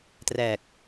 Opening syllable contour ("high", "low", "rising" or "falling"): low